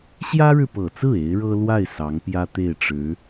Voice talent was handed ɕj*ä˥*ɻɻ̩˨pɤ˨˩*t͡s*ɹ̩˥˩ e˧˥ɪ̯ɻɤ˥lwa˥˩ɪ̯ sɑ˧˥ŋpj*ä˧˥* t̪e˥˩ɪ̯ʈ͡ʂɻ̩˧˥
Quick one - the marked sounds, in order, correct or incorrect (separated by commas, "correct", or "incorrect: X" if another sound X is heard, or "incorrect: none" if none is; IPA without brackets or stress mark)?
correct, correct, incorrect: ä˥